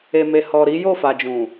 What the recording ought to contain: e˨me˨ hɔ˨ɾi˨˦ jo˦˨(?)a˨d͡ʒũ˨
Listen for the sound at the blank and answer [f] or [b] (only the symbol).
f